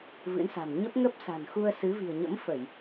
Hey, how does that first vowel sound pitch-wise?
rising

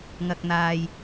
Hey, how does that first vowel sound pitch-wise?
low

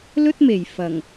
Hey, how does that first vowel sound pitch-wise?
high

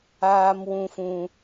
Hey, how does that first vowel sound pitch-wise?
high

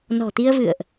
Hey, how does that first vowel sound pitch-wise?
low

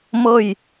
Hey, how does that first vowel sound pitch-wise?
falling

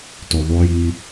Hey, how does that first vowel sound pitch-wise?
low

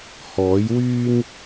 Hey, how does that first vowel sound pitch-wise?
rising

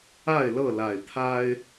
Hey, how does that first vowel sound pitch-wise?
falling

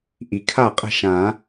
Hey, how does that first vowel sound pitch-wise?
low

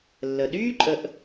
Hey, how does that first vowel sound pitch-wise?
low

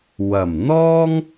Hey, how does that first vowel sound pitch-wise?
low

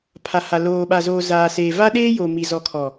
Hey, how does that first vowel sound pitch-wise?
low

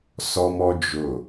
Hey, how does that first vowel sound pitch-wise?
high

